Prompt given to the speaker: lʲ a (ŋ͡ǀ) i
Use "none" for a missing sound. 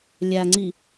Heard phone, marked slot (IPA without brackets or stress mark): ŋ͡ǀ